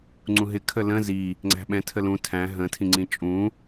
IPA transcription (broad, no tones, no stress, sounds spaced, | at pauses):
ŋ͡ǀ ũ ɦ ɪ kʰ ə l ə̃ z i | ŋ͡ǀ æ̤ ɓ ɛ̃ tʰ ə l ũ tʰ æ̃ ɦ ə̃ tʰ ĩ ŋ͡ǀ ĩ t͡ʃʼ ũ